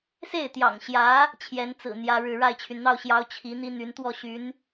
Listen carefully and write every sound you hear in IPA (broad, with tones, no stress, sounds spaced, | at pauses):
s e˥˩ ɪ̯ t̪ j ɑ̰˨˩ ŋ ɕ j ä˧˥ | t͡ɕʰ j ɛ˧˥ n t͡s ɹ̩˨˩ n̪ j ä˥ ɻ ɻ̩˥˧ ɻ a˥˩ ɪ̯ t͡ɕʰ y˩ n n̪ ɑ˥˩ ʊ̯ ɕ j ɑ˧˥ ʊ̯ t͡ɕʰ i˧˥ n̪ i˥ n̪ y˧˥ n t̪ w ɔ˥˩ ɕ y˧˥ n